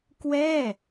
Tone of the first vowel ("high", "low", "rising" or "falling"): falling